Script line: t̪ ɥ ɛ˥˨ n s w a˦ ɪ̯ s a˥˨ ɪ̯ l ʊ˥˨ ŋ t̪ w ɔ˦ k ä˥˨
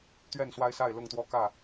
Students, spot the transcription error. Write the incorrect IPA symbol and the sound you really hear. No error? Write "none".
none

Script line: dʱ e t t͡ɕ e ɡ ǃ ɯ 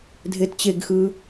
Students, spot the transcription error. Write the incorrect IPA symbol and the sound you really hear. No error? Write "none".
ǃ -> x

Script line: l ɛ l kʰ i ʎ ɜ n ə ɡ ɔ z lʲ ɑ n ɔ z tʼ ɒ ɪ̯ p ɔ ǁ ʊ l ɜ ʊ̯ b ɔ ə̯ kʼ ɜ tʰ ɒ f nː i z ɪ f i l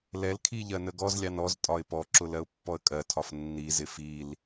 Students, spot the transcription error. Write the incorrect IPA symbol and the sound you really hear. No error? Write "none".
b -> pː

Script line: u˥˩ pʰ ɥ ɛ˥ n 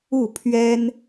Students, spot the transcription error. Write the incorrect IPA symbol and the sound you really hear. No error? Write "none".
none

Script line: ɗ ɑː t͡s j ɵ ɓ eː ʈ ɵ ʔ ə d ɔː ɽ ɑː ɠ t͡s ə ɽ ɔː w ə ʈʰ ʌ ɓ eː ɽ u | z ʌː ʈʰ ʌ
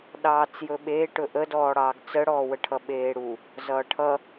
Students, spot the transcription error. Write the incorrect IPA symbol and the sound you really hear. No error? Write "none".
ɠ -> ɡ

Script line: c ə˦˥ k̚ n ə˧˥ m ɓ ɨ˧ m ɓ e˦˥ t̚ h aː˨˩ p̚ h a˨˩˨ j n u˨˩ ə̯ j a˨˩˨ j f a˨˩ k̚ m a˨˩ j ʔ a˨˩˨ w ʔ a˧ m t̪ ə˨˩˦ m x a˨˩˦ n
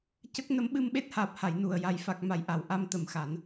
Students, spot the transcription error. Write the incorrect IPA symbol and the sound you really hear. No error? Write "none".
none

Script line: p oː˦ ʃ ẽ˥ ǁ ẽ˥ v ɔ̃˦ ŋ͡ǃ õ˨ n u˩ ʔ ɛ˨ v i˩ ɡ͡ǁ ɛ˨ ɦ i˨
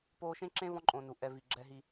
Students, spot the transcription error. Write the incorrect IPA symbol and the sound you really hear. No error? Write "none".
ŋ͡ǃ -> ǃʼ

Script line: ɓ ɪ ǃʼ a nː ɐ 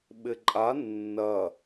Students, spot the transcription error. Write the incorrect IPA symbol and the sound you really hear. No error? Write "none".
none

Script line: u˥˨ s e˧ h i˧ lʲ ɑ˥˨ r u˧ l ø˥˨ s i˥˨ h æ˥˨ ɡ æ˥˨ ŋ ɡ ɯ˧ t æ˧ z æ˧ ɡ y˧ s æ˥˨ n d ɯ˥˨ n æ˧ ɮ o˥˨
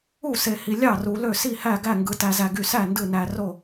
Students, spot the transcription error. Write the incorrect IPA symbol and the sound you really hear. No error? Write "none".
ɮ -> r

